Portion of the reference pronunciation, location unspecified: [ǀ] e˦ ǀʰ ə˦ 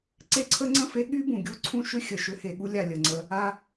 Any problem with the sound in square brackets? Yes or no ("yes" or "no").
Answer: no